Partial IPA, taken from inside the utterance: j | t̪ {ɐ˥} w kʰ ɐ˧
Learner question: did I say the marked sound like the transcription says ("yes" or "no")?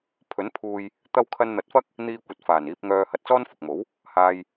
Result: no